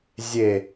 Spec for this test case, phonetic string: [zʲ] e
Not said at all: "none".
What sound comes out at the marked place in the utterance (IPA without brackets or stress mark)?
zʲ